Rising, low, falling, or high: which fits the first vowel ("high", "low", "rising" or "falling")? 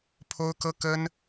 high